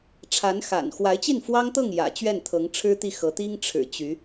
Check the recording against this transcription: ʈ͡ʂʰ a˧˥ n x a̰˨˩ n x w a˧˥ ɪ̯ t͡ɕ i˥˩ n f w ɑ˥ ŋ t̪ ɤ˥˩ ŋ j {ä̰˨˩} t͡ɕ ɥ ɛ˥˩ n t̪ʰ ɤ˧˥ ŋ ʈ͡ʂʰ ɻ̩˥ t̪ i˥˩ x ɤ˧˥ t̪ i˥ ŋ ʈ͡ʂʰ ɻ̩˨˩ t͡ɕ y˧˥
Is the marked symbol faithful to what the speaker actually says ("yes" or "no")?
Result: yes